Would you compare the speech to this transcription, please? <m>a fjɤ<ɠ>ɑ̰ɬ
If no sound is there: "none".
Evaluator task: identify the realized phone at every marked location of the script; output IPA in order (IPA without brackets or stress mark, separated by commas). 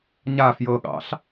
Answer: ɲ, ɠ